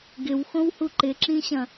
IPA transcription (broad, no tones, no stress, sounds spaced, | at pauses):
ɡ ɪ w x õ w h u ǃ ɪ ǁ ĩ ɕ ɐ̃